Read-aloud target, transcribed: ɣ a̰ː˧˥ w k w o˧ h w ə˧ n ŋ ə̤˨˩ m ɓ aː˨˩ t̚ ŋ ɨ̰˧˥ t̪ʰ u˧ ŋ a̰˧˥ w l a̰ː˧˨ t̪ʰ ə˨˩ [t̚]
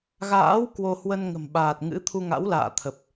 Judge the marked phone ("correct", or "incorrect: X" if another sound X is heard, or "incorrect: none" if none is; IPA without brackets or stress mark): incorrect: p̚